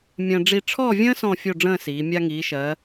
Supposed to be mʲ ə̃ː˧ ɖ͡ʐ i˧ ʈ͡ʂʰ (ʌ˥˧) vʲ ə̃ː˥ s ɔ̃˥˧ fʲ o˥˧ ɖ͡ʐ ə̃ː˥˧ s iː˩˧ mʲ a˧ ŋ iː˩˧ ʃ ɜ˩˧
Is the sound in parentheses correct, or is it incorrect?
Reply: incorrect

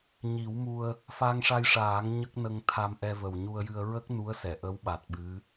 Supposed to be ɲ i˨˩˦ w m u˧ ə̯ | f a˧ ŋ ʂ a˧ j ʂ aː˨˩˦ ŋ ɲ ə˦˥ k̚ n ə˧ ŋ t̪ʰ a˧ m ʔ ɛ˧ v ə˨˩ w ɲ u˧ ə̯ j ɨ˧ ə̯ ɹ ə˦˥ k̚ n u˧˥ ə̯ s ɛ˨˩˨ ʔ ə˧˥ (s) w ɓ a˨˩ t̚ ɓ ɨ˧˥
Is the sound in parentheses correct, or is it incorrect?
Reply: incorrect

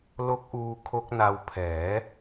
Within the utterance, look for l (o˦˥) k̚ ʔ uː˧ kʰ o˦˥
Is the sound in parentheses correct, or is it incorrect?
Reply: correct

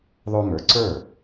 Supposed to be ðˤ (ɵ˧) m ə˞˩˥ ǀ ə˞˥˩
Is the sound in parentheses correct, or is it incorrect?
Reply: incorrect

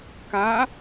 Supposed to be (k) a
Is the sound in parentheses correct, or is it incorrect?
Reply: correct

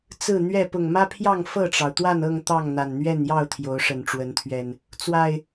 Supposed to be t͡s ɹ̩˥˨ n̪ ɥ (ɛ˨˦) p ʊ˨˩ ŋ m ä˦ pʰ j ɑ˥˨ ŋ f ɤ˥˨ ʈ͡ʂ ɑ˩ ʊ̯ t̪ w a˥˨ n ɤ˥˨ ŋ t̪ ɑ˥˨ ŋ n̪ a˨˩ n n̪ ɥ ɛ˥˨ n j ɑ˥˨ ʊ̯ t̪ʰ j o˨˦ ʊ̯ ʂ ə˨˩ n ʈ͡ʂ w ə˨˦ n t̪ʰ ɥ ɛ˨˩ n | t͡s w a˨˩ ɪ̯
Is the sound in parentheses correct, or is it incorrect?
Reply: incorrect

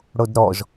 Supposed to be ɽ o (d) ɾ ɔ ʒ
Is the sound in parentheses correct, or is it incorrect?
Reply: correct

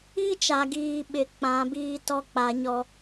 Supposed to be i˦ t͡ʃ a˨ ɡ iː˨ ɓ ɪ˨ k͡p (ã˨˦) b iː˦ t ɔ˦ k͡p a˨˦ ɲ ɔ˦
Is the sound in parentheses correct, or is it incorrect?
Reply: correct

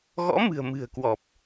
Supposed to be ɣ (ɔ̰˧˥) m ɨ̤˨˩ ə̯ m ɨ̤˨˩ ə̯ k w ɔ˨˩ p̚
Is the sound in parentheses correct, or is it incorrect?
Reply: correct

